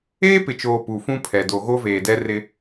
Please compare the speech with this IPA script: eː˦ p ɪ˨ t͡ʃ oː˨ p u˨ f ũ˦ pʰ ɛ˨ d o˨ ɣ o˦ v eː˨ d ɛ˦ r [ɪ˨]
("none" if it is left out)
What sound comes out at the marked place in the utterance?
ɪ˦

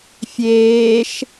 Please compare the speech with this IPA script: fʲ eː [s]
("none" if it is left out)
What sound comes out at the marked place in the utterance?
ʃ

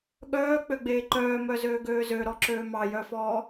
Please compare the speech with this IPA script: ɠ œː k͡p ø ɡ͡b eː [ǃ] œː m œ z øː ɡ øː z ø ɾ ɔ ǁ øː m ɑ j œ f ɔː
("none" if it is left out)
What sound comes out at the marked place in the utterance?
ǃ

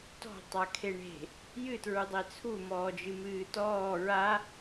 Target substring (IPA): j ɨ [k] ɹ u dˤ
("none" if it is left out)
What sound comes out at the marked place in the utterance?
t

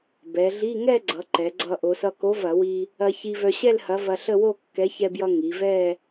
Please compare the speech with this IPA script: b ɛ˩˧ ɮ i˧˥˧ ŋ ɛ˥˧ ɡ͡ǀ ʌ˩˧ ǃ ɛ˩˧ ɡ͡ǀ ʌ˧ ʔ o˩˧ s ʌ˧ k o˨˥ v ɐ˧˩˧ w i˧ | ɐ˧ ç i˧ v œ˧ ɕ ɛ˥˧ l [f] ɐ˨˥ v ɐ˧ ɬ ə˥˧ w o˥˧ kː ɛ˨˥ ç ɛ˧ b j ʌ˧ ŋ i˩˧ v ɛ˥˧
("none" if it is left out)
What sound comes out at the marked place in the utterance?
h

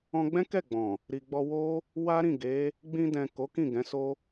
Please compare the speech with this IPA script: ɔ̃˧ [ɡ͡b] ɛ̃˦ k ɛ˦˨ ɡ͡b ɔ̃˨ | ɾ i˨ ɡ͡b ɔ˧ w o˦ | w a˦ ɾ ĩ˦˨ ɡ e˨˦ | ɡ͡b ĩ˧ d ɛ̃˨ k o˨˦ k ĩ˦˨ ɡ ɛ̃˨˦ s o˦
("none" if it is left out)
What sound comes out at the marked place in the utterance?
ɡ͡b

